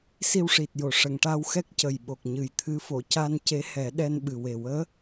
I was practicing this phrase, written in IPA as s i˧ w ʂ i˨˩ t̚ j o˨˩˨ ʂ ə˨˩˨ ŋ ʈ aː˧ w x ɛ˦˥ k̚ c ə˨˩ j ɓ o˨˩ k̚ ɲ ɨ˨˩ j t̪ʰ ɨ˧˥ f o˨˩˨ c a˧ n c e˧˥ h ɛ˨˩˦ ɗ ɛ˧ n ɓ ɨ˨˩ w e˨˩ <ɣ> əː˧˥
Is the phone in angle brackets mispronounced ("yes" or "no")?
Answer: yes